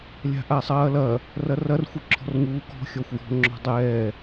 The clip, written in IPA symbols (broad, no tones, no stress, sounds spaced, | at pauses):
lʲ a̤ ʔ a sˤ ɐː l ɐ | r ɐ r ɐ r xʷ ɨ ǁʰ ɔ̤ r ŋ uː k ɔ̤ xʲ ɔ xʷ j ɔ̤ ŋ͡ǁ ɔ̤ dˤ ɛː